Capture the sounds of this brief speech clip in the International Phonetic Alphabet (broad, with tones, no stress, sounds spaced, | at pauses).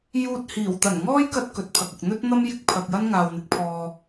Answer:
j uː˧ t̚ h iː˨˩ w t̪ ɐ˨˩ n ŋ ɔː˥ j k ɐ˥ t̚ k ɵ˨ t̚ pʰ ɐ˨ k̚ ʊ˨ k̚ n̪ ɵ˥ t̚ n̪ ɐ˥ m j ɪ˥ k̚ pʰ ɐ˨ k̚ j ɐ˥ n ŋ aː˨ w n̪ ɪ˨˥ k̚ pʰ ɔː˨